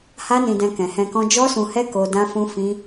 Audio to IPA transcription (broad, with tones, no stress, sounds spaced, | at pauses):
h a˦ n ĩ˧ d ɛ̃˧ k ɛ̃˨ h ɛ̃˧ k ɔ̃˦ d͡ʒ ɔ˦ s ũ˧ h ɛ˦ k o˦ d ã˦ f ũ˦ f ĩ˦